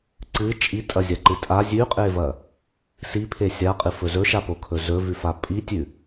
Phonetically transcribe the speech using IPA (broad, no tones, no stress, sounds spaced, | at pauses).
ǀ ɨ t͡ʃʼ i tʼ ɐ zʲ a ǃ ɨ tʼ a zʲ ʉ qʼ e v ɐ | s i pʰ e sʲ a qʼ ɨ f ɵ z ɵ ʃ a p o kʰ ɵ z ɵ v ʉ f a pʼ i tʲ ʉ